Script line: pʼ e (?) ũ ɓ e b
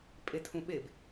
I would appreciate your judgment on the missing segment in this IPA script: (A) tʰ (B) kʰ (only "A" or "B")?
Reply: A